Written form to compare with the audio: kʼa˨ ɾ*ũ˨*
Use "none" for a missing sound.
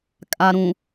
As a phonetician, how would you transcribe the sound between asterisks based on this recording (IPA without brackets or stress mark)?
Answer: ũ˨